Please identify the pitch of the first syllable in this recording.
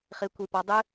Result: rising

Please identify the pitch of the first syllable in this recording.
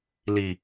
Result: low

